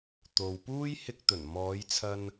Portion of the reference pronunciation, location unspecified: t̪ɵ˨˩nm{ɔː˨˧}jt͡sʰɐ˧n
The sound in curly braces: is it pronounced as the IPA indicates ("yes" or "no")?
yes